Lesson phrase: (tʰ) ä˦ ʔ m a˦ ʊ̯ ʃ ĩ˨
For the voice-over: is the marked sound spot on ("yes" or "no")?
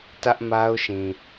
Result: no